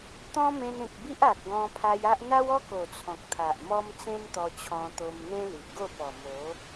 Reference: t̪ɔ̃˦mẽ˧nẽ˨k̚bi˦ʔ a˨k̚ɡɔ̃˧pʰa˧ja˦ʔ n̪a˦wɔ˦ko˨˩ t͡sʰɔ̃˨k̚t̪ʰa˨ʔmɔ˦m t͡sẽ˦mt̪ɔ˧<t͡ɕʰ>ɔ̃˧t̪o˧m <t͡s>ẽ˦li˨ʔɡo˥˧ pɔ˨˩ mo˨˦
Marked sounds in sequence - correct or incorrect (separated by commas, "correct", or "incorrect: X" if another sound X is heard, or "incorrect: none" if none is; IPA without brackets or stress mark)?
correct, incorrect: n̪